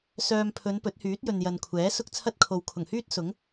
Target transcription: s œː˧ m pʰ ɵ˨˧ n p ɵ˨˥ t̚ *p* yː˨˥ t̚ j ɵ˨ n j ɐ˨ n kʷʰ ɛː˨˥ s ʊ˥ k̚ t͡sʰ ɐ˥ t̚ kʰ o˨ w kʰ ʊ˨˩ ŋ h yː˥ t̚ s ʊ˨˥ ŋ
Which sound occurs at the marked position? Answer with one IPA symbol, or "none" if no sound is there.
h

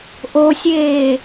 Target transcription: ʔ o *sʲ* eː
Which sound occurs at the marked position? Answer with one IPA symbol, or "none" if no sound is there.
sʲ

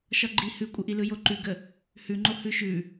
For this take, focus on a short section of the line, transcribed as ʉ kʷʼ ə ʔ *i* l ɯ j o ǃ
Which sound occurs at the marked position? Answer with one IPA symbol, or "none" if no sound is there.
i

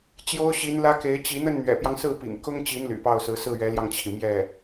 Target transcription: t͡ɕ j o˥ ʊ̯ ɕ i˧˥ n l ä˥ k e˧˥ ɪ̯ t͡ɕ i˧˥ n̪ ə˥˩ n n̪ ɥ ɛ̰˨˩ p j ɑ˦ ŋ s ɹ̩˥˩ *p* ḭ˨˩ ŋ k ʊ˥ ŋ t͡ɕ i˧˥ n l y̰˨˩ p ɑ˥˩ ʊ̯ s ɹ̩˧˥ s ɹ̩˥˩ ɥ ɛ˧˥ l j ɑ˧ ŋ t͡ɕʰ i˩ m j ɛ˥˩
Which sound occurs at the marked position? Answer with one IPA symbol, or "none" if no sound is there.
p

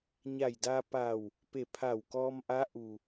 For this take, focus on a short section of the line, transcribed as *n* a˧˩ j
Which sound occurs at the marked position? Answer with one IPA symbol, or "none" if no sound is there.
ɲ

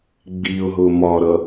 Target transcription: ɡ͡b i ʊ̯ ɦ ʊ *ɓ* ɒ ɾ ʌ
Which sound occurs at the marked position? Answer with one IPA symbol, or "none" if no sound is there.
m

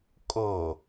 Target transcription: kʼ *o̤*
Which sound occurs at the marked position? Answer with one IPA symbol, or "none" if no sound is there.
o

